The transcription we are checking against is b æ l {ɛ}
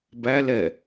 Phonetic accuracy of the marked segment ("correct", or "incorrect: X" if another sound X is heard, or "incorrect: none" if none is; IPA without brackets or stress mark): correct